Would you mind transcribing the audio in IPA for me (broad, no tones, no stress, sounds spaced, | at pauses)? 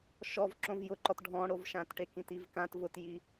ʃ ɔ v ǁ õ v j ʊ ǃ ɔ t ɖʱ ɔ̃ ɽ o v ʃ ã t ʈ e k ĩ t i v k ã t v ʊ t j i